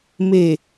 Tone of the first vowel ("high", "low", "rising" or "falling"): low